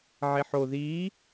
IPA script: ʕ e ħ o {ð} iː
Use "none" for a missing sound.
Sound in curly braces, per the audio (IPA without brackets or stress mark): ð